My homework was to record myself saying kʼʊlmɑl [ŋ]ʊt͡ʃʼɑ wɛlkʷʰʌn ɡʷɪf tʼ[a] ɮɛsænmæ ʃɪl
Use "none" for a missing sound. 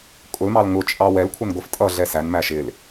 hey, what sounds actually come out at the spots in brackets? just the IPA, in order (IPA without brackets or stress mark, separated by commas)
ŋ, ʌ